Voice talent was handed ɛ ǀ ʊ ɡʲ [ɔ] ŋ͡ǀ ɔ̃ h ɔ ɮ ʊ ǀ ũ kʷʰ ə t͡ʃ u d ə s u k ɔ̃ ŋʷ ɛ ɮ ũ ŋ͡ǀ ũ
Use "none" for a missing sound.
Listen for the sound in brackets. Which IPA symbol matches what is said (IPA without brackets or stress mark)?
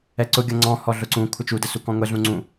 ʌ